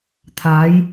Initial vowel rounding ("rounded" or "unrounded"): unrounded